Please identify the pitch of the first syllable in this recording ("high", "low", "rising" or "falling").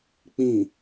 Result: low